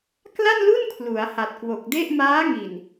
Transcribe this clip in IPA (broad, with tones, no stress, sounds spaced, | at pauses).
k l a˥˩ n l u˥˩ n kʰ l u˩˦ a̯ h a˨˩ t̚ k w o˨˩ k̚ d e˥˩ ʔ m aː˦˥ ŋ i˨˩ n